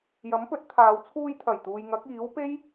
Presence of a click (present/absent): absent